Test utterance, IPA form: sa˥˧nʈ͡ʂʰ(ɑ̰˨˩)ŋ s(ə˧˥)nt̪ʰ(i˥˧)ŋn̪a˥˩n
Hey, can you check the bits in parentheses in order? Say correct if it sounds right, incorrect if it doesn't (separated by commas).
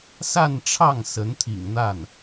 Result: incorrect, correct, incorrect